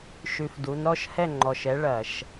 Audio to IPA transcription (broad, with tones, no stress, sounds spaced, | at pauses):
ʃ ʉ˧ f d u˨˥ n ɾ ɔ˥ ʃ h ɛ˥˨ ŋ͡ǃ ɔ˩˧˩ ʃ ɛ˨˥ ɭ ɐ˧˩˧ ʃ